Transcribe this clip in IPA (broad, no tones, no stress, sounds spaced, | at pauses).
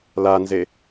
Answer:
l a n z e